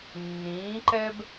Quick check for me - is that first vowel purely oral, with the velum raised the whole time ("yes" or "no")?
no